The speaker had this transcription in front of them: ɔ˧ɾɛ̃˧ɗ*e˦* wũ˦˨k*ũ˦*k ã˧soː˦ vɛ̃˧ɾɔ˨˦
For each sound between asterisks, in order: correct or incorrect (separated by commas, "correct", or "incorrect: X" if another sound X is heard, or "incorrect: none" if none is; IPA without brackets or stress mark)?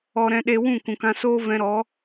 incorrect: e˧, incorrect: ũ˨